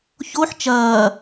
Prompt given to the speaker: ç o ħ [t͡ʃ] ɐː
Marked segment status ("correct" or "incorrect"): correct